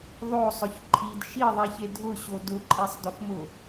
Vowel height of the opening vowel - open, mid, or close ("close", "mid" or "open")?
mid